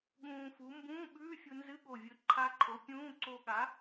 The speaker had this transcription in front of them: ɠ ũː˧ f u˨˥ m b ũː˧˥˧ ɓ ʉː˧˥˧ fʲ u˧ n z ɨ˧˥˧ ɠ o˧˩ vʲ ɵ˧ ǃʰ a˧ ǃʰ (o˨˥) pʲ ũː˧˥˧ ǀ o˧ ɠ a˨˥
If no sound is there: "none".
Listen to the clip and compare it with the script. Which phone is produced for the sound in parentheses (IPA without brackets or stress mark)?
o˨˥